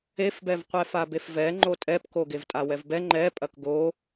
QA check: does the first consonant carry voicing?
no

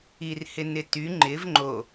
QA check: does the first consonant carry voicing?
yes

